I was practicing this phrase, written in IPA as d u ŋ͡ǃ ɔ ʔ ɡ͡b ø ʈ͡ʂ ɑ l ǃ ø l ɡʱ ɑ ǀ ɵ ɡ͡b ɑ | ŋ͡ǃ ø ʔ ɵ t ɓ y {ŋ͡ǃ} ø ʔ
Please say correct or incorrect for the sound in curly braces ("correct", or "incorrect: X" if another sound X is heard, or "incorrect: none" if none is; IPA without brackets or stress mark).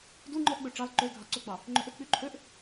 incorrect: ǃʰ